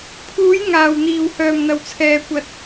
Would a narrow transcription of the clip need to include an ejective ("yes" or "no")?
no